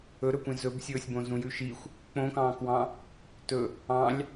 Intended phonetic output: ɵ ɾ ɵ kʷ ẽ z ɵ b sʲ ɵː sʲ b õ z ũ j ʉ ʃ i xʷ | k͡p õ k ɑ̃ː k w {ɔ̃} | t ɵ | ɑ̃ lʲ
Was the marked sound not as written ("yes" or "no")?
yes